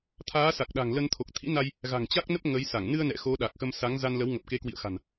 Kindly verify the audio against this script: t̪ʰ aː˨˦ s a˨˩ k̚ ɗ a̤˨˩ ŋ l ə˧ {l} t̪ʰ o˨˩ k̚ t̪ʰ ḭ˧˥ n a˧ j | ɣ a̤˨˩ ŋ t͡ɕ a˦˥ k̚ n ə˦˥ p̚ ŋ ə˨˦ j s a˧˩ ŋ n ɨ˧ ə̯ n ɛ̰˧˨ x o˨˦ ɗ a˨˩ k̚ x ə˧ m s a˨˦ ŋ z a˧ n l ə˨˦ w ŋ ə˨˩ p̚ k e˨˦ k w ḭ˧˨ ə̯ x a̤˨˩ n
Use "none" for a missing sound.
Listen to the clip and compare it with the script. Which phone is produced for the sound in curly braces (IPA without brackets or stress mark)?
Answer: n